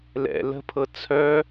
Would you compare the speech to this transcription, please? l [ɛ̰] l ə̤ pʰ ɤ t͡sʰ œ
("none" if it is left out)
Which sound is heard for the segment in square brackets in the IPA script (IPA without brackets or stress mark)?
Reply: ɛ̰